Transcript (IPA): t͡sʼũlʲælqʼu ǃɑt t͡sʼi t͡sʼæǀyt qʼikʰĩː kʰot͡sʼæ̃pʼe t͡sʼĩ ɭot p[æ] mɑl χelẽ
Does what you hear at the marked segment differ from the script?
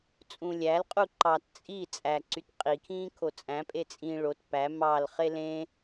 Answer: no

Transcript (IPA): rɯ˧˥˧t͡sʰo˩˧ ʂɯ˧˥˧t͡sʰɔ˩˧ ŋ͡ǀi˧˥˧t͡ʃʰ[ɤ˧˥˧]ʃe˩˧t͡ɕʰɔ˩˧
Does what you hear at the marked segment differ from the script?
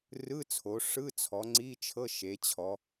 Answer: no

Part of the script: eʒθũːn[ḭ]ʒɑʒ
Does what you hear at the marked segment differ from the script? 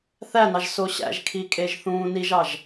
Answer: yes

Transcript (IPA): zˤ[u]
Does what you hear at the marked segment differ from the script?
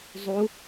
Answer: no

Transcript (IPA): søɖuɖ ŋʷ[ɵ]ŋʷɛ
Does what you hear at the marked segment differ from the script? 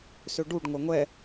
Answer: yes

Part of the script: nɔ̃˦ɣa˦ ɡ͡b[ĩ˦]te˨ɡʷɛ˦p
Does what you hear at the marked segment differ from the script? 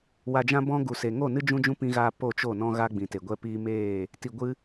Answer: yes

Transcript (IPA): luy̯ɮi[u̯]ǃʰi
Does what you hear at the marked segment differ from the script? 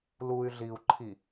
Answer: no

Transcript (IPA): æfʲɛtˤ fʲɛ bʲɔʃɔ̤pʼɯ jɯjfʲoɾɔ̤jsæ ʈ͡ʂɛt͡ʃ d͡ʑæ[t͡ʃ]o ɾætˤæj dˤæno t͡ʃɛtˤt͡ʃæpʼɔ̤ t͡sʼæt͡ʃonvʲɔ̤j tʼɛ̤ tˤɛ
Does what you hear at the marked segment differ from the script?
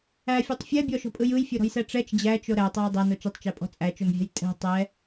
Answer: no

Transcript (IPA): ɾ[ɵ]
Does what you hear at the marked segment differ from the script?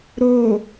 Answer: yes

